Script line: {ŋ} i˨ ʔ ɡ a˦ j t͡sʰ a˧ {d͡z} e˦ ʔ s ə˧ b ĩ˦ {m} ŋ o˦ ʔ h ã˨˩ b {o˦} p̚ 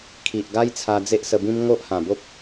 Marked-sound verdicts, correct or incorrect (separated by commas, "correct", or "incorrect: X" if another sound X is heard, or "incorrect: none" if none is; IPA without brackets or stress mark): incorrect: kʰ, correct, correct, correct